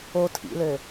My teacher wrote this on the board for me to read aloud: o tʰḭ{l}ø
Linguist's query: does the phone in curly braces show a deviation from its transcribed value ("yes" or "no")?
no